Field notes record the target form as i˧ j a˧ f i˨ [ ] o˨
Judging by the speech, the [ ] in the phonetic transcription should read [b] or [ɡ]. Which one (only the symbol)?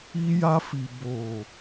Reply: b